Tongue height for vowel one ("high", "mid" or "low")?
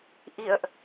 high